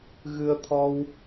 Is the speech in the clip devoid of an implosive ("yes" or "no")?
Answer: yes